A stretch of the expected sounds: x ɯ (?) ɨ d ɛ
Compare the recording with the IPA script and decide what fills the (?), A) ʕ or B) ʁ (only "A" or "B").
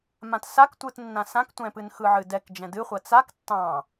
A